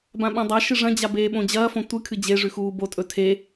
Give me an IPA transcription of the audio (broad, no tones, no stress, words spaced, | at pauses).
bãɓãdˤaʃɨ ʐɐ̃d͡ʑa beːɓõd͡ʑɐːfõ tʷɨ kʰɨd͡ʑeʐʉ xuːbotʼɵ tʰe